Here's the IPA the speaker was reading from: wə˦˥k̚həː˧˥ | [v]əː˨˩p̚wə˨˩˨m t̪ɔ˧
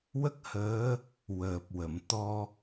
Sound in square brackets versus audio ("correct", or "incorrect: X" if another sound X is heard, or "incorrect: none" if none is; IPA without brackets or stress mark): incorrect: w